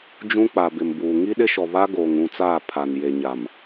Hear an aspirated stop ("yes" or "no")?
yes